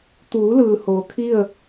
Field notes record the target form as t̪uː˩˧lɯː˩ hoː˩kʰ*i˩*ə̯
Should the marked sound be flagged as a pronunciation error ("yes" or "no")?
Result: yes